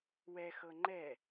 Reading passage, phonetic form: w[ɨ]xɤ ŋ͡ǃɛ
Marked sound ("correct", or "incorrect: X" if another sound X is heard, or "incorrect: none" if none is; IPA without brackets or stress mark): incorrect: ɛ